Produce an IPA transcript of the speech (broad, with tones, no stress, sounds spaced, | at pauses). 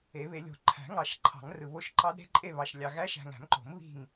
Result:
e˨˩˦ β e˨˩˦ lʲ o̤˨ ǃʰ æ̤˨˩˦ ŋ ɑ˨˩˦ ʃ ǃʰ ɑ̤˨˩˦ ŋ r ɯ˨ β o˧˥ ʃ ǃ ɑ˧˥ d ɾ e̤˧˥ ǃʼ e˦˨ β ɑ˨ ʃ lʲ ɑ˨ ɣ æ˧˥ ʃ æ̤˨ ŋ æ̤˨˩˦ m ǃ o̤˨˩˦ m β i̤˦˨ ŋ